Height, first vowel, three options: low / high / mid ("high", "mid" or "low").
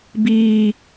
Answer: high